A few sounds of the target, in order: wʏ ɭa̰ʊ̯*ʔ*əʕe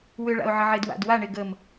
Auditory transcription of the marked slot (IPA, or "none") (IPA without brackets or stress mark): ʕ